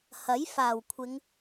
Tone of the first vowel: rising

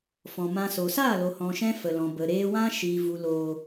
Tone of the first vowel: low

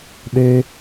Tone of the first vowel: high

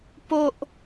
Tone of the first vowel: high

